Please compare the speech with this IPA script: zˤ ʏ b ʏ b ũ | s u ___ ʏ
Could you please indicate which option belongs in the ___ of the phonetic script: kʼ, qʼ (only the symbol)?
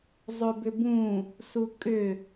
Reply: kʼ